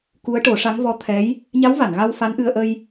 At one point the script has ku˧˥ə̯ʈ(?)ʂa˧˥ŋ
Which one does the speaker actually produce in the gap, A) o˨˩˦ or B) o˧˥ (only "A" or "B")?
A